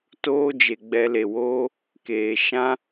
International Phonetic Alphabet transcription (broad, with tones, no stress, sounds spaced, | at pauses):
t oː˦ d͡ʒ e˨ ɡ͡b ɛ˧ l e˨ w oː˦ | k eː˨ ʃ ã˦